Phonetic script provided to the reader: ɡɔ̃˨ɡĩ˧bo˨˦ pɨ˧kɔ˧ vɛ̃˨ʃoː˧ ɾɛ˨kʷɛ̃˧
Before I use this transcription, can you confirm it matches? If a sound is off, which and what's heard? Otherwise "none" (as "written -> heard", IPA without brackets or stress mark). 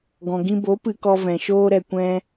none